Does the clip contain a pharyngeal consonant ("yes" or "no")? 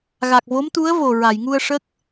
no